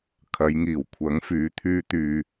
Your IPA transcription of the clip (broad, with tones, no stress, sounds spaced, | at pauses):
kʰ ɐ˨˧ j ŋ iː˨˩ w kʷʰ ɐ˨˥ ŋ f yː˨˥ t̪ʰ yː˧ t̪ yː˨